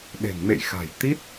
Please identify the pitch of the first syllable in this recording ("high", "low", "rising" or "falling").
low